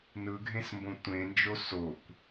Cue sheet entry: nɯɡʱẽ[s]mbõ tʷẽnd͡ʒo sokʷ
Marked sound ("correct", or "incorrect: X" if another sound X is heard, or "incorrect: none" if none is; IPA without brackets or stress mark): correct